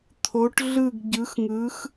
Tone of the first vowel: rising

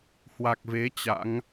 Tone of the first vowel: low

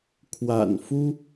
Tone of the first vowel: low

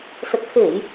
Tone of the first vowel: low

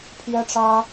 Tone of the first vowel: high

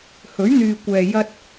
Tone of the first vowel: rising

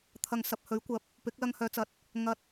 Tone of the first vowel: low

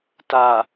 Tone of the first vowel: low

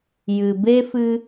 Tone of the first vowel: low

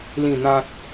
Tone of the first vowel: falling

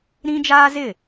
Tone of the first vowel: high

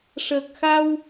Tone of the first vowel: low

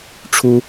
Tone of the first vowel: high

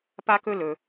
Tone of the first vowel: high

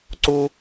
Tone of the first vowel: high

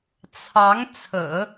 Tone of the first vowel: rising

